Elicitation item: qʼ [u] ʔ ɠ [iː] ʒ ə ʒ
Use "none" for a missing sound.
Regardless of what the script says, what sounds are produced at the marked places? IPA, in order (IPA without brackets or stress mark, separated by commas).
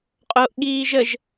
o, iː